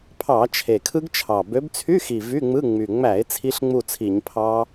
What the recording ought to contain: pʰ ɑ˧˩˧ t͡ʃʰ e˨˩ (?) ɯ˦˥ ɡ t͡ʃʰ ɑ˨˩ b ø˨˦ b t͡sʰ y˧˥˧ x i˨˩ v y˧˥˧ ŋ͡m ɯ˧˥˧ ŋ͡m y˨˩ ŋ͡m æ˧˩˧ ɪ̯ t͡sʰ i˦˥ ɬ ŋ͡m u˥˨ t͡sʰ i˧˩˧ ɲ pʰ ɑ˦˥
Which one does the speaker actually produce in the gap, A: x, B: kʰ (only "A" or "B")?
B